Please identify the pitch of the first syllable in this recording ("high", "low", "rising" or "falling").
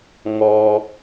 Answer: low